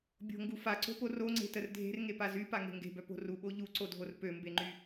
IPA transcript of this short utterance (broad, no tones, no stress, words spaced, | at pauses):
bʲo̤ŋɡu faǀo̤po roŋ͡ǀe̤tər dʱe̤rŋepa zypaŋe̤ ŋɡe̤bœpo̤ ruɓo ʎuǀodʱor pømbeŋ͡ǃy